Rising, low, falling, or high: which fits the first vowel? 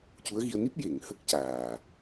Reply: rising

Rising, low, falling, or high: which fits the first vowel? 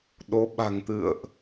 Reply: rising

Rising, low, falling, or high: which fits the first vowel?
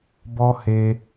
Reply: high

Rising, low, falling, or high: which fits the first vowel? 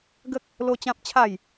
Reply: high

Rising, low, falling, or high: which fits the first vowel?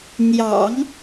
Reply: low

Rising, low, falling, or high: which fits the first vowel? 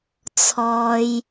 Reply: high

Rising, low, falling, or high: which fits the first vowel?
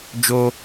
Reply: high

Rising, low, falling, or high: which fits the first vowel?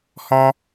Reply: high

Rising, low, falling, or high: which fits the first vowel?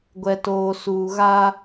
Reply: low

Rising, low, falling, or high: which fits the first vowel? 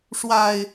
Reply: low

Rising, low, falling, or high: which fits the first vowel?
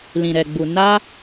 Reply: low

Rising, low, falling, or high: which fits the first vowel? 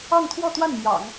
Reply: falling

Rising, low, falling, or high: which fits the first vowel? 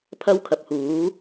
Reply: high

